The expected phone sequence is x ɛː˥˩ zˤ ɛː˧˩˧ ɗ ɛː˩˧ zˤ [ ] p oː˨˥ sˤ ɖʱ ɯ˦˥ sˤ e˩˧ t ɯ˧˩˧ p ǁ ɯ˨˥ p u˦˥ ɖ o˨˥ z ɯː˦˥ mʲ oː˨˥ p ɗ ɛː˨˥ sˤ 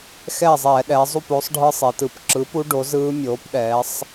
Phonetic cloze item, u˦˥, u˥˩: u˥˩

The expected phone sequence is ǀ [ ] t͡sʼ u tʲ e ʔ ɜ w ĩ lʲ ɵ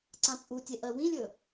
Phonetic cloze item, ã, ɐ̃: ã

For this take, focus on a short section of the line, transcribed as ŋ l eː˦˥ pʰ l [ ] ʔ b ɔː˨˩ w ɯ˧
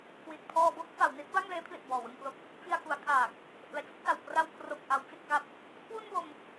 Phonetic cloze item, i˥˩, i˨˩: i˨˩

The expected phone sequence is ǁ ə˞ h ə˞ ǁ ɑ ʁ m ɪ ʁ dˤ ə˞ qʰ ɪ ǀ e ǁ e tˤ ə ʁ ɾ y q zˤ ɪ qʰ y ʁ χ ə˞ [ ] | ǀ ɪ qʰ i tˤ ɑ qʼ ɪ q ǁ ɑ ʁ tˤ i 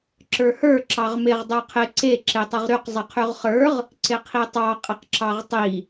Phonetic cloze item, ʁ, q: ʁ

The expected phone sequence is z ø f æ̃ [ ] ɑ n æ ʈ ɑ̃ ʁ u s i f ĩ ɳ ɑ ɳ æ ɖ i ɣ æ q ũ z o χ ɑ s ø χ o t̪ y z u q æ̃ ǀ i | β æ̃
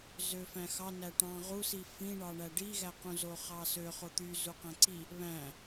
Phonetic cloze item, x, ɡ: x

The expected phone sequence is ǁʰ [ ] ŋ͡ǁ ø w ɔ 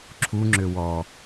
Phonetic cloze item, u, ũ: u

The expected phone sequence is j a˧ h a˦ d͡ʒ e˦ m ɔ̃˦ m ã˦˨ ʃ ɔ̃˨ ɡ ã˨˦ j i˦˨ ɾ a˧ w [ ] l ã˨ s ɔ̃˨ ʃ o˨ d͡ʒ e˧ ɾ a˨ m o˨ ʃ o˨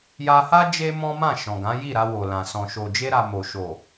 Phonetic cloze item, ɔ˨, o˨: o˨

